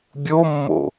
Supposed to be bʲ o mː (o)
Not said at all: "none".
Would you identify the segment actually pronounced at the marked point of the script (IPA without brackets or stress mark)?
o̰